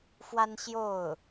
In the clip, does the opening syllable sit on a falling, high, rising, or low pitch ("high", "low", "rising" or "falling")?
high